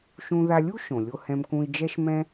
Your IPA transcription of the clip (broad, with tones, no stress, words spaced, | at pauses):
ʃũ˧ða˧lʲu˥ ʃõ˩lʲo˧hɛ̃˧mkũ˧i̯ d͡ʒɛ˧ʃmɛ̃˧